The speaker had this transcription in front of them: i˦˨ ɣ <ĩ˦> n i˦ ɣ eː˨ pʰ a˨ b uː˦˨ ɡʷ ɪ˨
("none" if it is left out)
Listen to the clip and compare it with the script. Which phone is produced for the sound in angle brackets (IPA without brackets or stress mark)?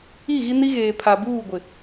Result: i˦